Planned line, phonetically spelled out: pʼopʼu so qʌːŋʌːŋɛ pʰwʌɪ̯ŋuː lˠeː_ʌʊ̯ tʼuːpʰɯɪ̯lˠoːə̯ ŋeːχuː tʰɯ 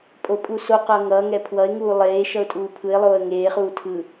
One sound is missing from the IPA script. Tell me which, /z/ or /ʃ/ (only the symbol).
ʃ